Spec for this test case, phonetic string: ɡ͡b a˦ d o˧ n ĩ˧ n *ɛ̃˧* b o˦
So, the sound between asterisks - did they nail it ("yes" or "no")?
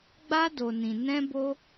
no